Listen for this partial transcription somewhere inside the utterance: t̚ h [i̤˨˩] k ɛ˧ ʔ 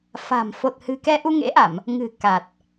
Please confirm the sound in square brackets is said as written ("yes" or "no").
no